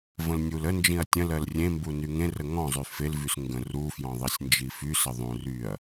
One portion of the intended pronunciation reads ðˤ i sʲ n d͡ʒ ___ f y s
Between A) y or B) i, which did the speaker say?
B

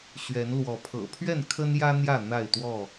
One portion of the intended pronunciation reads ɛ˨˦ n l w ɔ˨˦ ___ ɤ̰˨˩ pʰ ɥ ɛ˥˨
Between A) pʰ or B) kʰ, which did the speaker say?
A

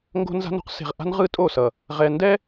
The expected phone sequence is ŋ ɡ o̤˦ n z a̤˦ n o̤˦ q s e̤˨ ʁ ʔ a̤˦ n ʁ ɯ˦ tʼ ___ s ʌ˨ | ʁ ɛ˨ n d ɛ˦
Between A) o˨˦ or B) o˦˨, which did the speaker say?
B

